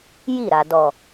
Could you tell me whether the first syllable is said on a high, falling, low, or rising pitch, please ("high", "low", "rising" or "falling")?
falling